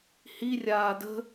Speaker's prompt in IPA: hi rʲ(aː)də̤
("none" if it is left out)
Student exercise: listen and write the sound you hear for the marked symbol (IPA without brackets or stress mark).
aː